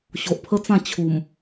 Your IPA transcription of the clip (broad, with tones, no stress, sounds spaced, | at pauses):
ɕ o˨ ʔ pʰ ə˦ t͡s ã˥˧ t͡ɕʰ u˨˩ m